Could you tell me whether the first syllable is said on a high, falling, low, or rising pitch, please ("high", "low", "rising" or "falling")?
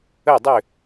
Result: falling